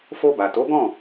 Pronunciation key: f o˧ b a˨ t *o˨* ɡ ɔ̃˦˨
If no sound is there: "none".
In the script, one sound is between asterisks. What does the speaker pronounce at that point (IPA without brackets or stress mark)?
o˨˦